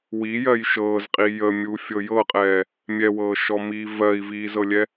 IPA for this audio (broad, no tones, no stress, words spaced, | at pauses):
wijɜj ʃɤːzqʼi jəmʲufʲɤ jɤqʼɛː | mʲɛwɤːʃɔmiː vɜi̯viːzɤlʲɛ